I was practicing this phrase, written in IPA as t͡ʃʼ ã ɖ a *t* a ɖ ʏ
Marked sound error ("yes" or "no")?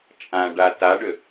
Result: no